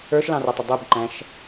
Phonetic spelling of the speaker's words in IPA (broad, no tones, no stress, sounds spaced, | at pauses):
ə˞ ʃ l ɑ̃ r æ tˤ ə dˤ ɪ b ǃ æ̃ ʃ